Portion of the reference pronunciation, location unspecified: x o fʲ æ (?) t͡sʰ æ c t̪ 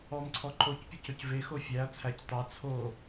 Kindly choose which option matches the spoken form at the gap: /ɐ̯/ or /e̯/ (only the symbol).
ɐ̯